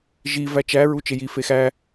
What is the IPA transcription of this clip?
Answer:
ʒi væt͡ʃæ ɹut͡ʃeji fexæ

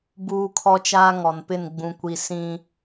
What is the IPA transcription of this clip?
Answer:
buː˦kʰɔ˦t͡ʃaː˦ ŋɔ˨npɪ˦˨n ɡ͡bũ˨kʷi˨ sĩ˦

